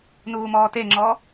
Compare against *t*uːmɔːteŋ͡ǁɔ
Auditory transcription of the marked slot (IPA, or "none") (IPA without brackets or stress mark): n